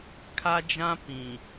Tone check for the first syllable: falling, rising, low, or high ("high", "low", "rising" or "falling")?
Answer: high